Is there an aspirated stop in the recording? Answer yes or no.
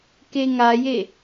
no